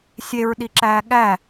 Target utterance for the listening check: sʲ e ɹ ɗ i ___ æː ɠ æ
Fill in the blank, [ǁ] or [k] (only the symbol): ǁ